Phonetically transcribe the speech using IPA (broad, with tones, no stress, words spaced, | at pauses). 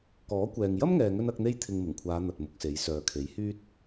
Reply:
kɔː˨˥kʷɛː˨ŋ jɐ˥mŋɛː˨ŋɵ˧n ɐ˨˥k̚n̪e˥j t̪ʰɪ˧ŋmɪ˨˩ŋkʷʰaː˨˧ n̪ɐ˨t̚mʊ˧k̚se˨˥j sœː˨kʰe˨˥j hyː˥t̚